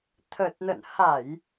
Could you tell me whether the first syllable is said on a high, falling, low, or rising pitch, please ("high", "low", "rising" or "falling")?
low